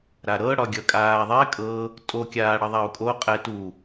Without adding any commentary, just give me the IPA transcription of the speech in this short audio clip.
ɾ a ɾ ɤ ɽ ɒ ɡʲ ʌ kʼ aː ðˤ ɛ kʼ ɤ | tʼ o kʲ aː ɽ ʌ ðˤ a u̯ kʼ o qʼ ɛ t u

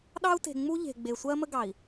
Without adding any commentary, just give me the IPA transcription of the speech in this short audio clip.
ɗ ɑ˦ u̯ t e̤˨ ŋ͡m u˦ ʎ e̤˨ ɡ͡b e˨ sʷ ɜ˦ m ə˦ ɡ ɑ˨ i̯

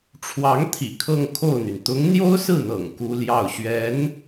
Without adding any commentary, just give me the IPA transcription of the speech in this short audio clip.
ʈ͡ʂʰ w ɑ˧˥ ŋ t̪ʰ ḭ˨˩ kʰ ɤ˥˧ ŋ kʰ o˥˩ ʊ̯ n̪ y˩ n t̪ ʊ˧˥ ŋ n̪ j o˥ ʊ̯ s ɹ̩˥˩ n̪ ɤ̰˨˩ ŋ k u˥ l j ɑ˥˩ ʊ̯ ɕ ɥ ɛ˧˥ n

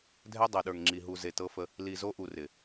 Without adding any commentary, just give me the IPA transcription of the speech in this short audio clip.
dʱ ɛ˦ dˤ ɤ˨ ɗ ə˞˨ ŋ ŋ͡ǁ i˨ ɦ u˨ z e˨ t ɤ˦ f ə˦ | l i˨ z o˦ ʔ u˨ r ɪ˨

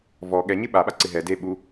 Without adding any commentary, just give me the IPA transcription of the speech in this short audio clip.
v ɔ ɠ ɛ ɲ ɪ ɓ a ɓ a ǀ ɪ ɦ ɛ d e ɓ u

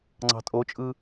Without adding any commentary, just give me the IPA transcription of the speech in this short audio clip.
ŋ͡ǀ ɑ̤ tʼ o t͡ʃʼ ɯ

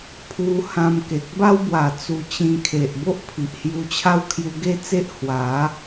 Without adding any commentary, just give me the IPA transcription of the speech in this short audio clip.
pʰ u˧ h ã˧ m k e˨ k̚ b a˦ w b w a˨˩ t͡s u˧ t͡ɕ ĩ˧ kʰ e˨ ʔ b o˦ ʔ pʰ i˨ ʔ h j u˧ t͡ɕʰ a˦ w kʰ j u˧ ɡ e˥˧ t͡s e˦ ʔ h w a˨˦

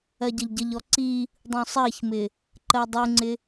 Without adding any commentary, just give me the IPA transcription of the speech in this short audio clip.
ɜ ɟ ʌ ʎ ɟ ə ʎ ɔ ǀ i | dˤ ũ sˤ ɜ ç m ɪ | ǃ ɜ dˤ u ŋ͡ǀ ɪ

